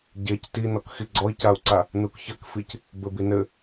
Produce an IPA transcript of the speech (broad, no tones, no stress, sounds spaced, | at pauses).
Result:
ɟ e c t i n ɔ k x i ɡ͡ǀ ɔ i̯ c a u̯ ǀ a | n u k ç ɐ k f i c | b ɘ b i n ɘ